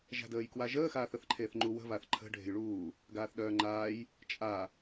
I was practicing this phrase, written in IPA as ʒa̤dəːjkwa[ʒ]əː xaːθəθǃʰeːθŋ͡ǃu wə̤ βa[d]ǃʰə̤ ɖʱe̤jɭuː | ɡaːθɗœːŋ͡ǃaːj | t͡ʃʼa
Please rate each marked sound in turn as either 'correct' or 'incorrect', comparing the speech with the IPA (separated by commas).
correct, incorrect